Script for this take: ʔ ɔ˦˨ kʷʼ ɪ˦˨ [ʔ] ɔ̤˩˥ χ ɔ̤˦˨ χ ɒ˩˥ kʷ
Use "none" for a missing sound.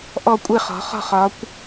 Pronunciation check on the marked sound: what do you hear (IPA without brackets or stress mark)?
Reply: χ